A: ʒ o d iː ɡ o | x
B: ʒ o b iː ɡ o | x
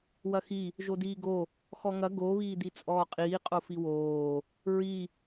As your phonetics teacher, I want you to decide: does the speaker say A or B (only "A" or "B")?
A